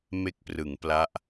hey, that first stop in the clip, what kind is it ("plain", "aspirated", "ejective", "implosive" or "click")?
plain